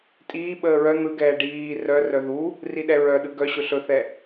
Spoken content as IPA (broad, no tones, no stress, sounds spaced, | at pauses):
tʼ iː ɓ əː ɹ œ n̪ ɯ ɡ ɛː ɖ iː r œ r œ ð u | r i ɗ ɛ ɹ œ ɗ ɯ ɡ œ ɕ ɵ ɬ ɵ θ ɛ